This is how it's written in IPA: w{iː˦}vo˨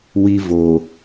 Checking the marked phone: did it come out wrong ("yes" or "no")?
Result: yes